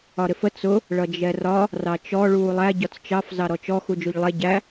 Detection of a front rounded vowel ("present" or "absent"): absent